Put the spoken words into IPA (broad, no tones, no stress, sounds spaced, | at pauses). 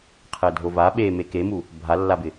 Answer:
qʰ ɛ dʱ o v a ɓ e m e k e m u | bʱ a lː a b ɪ